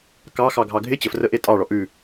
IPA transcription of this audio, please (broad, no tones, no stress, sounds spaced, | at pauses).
k ɑ x ɑ ɡʱ ɑ ɡʱ ɪ t͡ɕ ə f r ə ʔ e tʼ ɑ ɭ ɔ ʔ ʉ